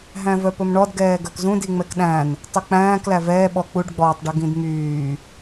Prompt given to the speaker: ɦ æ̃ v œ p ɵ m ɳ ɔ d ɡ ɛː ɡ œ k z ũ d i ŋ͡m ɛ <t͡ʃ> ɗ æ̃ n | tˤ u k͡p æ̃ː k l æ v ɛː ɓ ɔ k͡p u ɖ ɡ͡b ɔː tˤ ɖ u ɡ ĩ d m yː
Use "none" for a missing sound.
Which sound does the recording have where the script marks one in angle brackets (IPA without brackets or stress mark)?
k